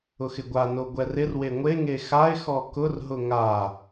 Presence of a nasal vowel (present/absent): absent